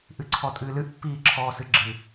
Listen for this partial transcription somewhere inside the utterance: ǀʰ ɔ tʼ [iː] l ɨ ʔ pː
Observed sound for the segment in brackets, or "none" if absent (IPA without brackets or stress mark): ɨː